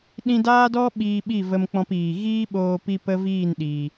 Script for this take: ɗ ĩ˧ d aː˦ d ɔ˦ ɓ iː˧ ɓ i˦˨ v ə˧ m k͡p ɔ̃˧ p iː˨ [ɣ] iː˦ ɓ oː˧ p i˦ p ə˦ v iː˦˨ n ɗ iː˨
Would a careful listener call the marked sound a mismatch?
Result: no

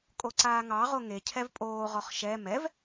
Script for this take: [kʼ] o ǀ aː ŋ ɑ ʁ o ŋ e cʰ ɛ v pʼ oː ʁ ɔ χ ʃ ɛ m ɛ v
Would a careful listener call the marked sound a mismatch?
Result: no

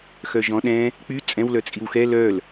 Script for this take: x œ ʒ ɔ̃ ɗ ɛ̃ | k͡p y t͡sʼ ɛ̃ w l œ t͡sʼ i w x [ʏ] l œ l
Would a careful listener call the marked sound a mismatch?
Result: yes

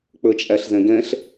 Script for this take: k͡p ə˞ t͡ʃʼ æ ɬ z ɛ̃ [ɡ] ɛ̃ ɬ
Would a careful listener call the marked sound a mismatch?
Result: no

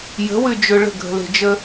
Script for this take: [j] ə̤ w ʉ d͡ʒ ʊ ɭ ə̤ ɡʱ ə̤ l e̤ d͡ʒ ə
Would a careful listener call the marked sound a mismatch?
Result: no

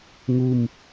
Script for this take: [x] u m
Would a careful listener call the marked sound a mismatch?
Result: yes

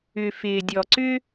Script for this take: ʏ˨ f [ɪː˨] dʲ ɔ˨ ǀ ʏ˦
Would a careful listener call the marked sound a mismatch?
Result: no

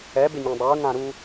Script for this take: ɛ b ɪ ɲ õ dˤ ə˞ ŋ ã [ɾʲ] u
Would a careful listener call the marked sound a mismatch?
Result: yes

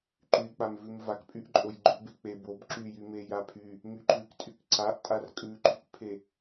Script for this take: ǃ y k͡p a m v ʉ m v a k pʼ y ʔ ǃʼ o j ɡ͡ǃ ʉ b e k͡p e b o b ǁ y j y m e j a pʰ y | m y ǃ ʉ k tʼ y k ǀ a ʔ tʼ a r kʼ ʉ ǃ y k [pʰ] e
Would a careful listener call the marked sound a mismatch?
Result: no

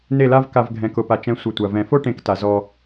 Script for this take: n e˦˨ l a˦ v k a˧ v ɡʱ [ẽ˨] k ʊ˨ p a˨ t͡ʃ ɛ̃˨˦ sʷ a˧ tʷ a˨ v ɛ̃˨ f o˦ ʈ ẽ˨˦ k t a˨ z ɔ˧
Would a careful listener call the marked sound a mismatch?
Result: yes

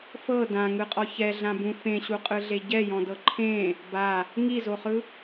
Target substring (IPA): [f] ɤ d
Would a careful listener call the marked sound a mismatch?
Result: no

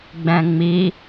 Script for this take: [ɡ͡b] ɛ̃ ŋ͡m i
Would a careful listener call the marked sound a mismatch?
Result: no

